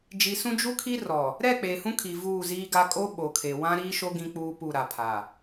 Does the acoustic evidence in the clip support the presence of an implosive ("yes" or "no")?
yes